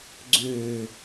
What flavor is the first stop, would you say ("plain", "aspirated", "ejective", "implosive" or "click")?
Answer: click